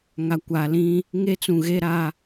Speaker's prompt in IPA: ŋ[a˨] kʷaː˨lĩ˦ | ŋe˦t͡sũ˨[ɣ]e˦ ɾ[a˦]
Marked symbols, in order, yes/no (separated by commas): yes, yes, yes